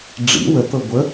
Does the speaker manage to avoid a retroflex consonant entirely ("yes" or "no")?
no